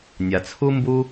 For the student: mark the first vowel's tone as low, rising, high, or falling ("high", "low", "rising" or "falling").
low